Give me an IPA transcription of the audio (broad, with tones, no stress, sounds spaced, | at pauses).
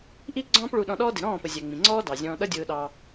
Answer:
ʔ i˦ ɡ͡ǀ ɔ̃ː˦ p ɭ u˧ ɗ ɔ̃˧ ɗ ɔː˦ d ɪ˨ ɾ ɔ̃ː˦˨ p ə˨ zʲ æ˨ ŋ͡m ĩ˨ ŋ͡ǀ ɔː˦ d ɑ˨ zʲ ɔ̃ː˧ ɗ ʌ˦ dʲ ʊː˧ ɗ ɑ˧